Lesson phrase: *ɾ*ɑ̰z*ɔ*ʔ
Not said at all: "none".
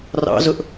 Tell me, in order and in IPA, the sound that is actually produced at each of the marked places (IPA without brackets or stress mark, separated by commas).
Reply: r, ʊ